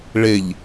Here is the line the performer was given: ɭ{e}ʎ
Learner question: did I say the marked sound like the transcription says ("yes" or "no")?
yes